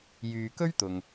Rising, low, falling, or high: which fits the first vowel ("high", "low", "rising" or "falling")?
low